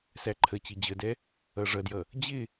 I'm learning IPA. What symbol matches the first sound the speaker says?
s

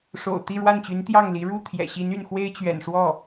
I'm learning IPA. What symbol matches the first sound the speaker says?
ʂ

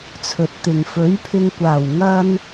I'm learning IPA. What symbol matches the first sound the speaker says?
t͡sʰ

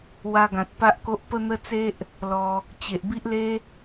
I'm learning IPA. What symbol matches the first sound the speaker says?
w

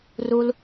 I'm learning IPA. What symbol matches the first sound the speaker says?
r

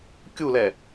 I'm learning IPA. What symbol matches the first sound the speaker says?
kʲ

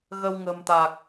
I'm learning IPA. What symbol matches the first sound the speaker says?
ɣ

